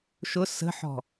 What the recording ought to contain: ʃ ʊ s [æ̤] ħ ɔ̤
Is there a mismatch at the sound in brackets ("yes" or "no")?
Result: yes